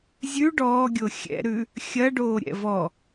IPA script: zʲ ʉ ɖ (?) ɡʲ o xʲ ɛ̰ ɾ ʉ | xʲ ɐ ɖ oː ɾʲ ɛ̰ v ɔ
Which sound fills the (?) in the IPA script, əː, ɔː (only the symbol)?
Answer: ɔː